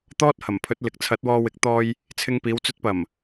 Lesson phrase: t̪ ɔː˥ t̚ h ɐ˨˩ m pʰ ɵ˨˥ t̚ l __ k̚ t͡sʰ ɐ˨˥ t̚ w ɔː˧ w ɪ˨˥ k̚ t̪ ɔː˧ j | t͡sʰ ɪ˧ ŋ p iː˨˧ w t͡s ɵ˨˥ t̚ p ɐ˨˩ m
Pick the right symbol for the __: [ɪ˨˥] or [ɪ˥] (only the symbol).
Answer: ɪ˨˥